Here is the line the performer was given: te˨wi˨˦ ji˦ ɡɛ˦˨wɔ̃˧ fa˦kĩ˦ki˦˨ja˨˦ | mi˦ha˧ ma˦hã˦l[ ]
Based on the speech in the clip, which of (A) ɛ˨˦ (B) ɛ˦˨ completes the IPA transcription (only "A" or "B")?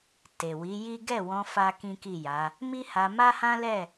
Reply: B